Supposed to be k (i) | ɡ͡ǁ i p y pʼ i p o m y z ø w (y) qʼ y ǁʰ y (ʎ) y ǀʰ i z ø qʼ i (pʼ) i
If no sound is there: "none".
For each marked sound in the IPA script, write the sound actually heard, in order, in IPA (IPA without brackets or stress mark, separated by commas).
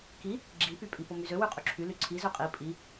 i, y, l, pʼ